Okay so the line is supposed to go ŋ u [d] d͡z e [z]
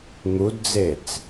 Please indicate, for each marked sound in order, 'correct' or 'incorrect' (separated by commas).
correct, incorrect